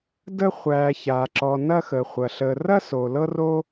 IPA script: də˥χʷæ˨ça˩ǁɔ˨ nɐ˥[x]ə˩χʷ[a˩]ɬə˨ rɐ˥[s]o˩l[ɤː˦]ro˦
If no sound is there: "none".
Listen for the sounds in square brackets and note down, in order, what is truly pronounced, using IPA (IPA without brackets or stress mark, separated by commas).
x, ɐ˩, s, ɤ˦